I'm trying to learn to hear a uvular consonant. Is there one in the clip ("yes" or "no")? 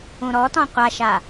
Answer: yes